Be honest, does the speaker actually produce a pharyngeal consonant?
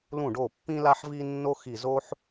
yes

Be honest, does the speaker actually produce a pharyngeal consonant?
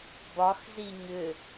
no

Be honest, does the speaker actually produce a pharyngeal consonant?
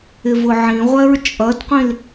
yes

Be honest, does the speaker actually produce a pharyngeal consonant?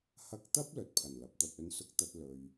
no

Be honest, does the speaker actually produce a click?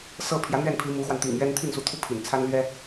no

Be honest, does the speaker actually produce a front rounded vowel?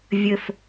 no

